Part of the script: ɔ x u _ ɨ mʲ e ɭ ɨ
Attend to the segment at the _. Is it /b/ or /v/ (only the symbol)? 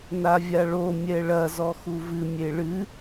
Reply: v